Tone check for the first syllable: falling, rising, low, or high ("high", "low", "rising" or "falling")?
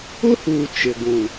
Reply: high